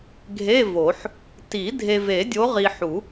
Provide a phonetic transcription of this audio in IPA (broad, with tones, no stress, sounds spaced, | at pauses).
ɡʱ e˧˥˧ v o˨˩˦ ħ | t i˨˩˦ dʱ e˨ v e˨˩˦ dʲ o˨˦ ʁ i˨ ħ u˨˩˦